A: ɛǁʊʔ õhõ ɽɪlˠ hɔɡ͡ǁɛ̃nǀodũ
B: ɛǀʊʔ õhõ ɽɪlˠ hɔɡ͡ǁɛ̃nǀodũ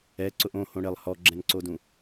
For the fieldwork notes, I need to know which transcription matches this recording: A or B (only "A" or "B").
B